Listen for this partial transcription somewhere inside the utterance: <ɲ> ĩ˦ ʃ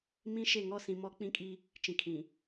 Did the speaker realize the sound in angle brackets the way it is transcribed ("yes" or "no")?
no